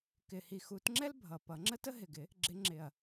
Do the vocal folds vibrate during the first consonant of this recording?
no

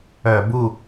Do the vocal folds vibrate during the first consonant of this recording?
yes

